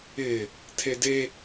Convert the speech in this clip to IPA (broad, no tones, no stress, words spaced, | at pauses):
ɪ | tʰede